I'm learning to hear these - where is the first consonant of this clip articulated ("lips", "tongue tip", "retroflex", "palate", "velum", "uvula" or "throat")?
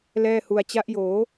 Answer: tongue tip